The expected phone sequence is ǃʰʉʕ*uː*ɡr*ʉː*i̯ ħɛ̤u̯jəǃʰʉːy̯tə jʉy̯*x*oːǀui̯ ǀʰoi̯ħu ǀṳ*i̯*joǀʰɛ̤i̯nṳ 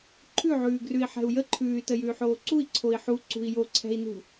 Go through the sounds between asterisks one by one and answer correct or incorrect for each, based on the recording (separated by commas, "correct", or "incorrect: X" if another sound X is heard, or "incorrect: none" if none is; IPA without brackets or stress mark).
incorrect: ʉː, incorrect: ʉ, incorrect: ħ, correct